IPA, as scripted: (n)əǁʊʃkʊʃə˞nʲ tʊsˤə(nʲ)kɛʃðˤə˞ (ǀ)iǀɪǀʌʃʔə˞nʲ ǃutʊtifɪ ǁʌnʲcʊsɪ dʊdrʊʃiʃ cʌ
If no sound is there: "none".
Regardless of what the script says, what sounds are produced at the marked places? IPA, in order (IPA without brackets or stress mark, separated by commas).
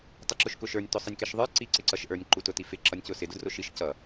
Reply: tˤ, nʲ, ǀ